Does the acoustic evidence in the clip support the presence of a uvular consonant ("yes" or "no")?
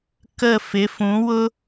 no